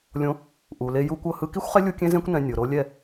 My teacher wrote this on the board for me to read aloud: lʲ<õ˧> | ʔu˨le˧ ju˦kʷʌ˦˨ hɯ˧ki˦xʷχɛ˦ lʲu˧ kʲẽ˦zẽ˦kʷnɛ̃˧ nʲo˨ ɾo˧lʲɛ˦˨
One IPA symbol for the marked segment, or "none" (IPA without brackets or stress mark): õ˧